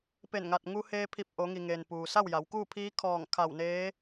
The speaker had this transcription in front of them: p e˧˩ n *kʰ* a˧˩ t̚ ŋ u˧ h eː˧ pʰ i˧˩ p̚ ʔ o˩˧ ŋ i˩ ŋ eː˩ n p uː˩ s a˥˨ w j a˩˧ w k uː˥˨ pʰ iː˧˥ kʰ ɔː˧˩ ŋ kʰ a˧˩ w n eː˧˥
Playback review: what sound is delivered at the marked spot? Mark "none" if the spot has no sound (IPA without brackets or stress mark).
ŋ